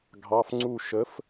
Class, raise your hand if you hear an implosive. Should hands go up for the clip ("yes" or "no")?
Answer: no